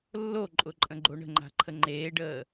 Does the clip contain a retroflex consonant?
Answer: yes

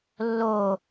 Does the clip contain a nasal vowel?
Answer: no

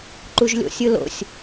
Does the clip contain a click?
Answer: yes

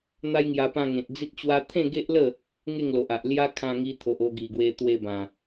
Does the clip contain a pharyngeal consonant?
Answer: no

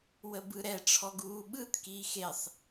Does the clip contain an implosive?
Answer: yes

